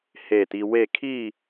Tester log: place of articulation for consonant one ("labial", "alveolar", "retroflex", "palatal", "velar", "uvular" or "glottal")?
glottal